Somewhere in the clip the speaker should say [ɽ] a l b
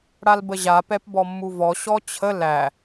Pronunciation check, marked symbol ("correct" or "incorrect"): correct